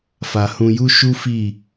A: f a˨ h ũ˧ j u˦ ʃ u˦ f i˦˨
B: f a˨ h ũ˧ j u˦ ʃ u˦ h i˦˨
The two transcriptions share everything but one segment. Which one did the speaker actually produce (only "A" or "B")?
A